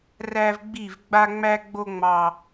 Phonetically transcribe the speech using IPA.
ræ˦vɡ͡bi˦˨v ɡ͡ba˦ŋ͡mæ˦ɡ͡bo˦ ŋ͡mɑ˦

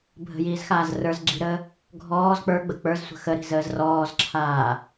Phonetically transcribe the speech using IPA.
bʱə̤jiːzxaːz rə˞z ɡ͡ǁi̤ɾəː | ɡʱɔːz k͡pə˞ɡ͡bə k͡pə˞zsʷə̤ xəɾi̤zəːz rɔːzǁʰaː

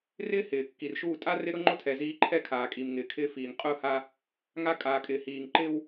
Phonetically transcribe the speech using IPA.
rɪː˦ hɪː˨kːi˨rʃuː˦˨ tʼa˦rɪ˦ ɾʊ˦ŋ͡ǃʊ˦tʰɛ˨ ziː˦ ǃʰɛ˦kʰaː˨ kʼi˨mŋɪː˨ kʰɪː˦fiː˨ŋ qʼʊː˦ha˦ | ŋa˦kʼaː˨kʼɪː˨hiː˨ŋ ǃɪː˦w

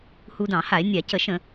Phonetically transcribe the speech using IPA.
hu˧dɑ̃˧˩˧ ha˧˩˧e̯nʲa˧˩˧cə˧˩˧ ʃə̃˧˩˧

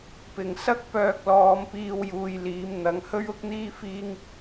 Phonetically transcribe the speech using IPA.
pɪ˨˩ŋsɐ˥k̚ pœː˧k̚lɔː˨˧m piː˧w juː˧jliː˨˥mn̪ɐ˨˥ŋ hɵ˥ɥʊ˥k̚n̪iː˥ fiː˥ŋ

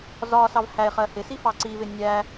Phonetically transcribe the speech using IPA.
zɒ sɑvhæe̯χɜ hɪsi fɑǀivɪ nʲæ

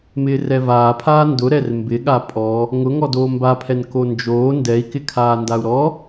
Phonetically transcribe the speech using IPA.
mɪːrɛvaːpʰaː ndʊɾɛr mbɪɠa pʼɔ | ŋʊ ŋɔdoːmbapʰɛn kond͡ʒoː ndɛi̯kɪkʰaː ndau̯ɾɔ

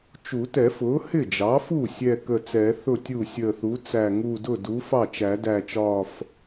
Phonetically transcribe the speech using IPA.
t͡ʃu˨˩˦tɛ˨˩˦fʊː˩˥ hɪ˥˩d͡ʒɑ˩˥fu˥˩ sʲɛ˧˩ kə˧˩t͡sɛ˨˩˦θʊ˥˩tʲu˥˩ sʲəː˧˩θu˩˥t͡sæ˧˩ ŋu˧˩dʊ˥˩du˩˥ fɑ˥˩t͡ʃæ˨˩˦dæ˧˩t͡ʃɒː˧˩f

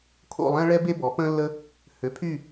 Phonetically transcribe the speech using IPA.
kʰo̰˦˨lˠɛ̃˥ɭɛ˥be˥ bɔ˩˥pə̃ː˥lːə˥ | hø˩˥pʰy˦˨

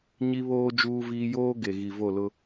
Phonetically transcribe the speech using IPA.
ɲi˦βoː˦ d͡ʒuː˦viː˦ joː˦ ɡe˨ɣi˨vo˦˨lʊ˦

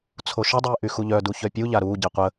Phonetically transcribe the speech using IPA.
t͡sʰoʃədˤiː ʔyxuʎœdu çœpʲuʎa ɾuːɟi qʷə

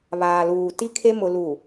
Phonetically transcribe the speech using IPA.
βaː˨luː˨ti˦kʰe˦ mʊ˨lu˨

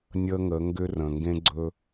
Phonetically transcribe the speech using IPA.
nʲə˦ŋə˨˦ ŋɡʏ˦rə̃˨ ŋɡẽ˦ɡ͡ǀɵ˦

